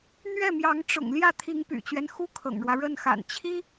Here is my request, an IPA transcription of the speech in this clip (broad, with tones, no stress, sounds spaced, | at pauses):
n̪ ɥ ɛ˥˩ m j ɑ˧˥ ŋ ʈ͡ʂ ʊ̰˨˩ ŋ l j ä˥˩ t̪ʰ i˧˥ ŋ p y̰˨˩ t͡ɕ ɥ ɛ˦ n x u˥ kʰ ɤ̰˨˩ ŋ ɻ w ä˦ ɻ ə˥˩ n x a̰˨˩ n t͡ɕʰ i˥